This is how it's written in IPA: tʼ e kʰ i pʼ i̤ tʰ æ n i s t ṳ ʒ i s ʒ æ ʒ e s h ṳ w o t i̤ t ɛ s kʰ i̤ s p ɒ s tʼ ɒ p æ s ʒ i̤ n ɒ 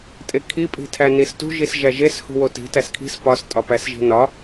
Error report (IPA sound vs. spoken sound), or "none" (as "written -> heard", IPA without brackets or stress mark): ɛ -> æ